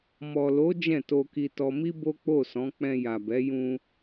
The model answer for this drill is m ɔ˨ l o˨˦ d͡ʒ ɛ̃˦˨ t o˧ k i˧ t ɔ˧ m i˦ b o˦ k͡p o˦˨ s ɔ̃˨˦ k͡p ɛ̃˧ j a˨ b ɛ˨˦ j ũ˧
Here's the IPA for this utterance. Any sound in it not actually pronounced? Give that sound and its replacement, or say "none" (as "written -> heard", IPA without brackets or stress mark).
none